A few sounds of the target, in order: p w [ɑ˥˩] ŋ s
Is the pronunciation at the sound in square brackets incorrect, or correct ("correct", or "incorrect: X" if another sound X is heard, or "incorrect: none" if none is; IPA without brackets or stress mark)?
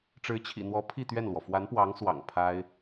incorrect: ɑ˧˥